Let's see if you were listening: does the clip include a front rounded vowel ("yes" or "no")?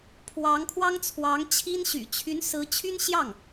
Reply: yes